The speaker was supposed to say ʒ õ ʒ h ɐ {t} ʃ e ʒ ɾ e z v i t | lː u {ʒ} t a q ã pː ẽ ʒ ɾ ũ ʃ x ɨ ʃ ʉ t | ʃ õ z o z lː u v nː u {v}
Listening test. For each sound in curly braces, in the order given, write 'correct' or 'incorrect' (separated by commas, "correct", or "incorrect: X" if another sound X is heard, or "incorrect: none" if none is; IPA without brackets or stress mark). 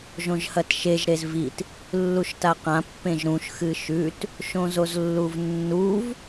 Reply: correct, incorrect: ʃ, correct